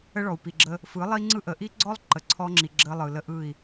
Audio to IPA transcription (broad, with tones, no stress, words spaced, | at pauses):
ə˦ɭɔ˨u̯pi˨ɡ͡ǁə˦ | fɯ˨˦lˠi˦ŋ͡ǀɯ˦ ʔə˨ʔi˦ɡ͡ǀɔ˦lˠ ǃə˨ǀʰɔ˦ŋ͡ǁi˨ ɡ͡ǁə˦lˠɯ˨ lə˦ʔɯ˦˨i̯